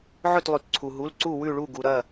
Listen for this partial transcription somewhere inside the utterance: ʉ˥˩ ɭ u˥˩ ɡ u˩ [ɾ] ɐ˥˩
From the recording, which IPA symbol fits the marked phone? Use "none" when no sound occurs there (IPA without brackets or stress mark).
ɾ